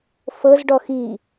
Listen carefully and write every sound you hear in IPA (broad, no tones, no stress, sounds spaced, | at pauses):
f ɤ z ɖ ɔ x i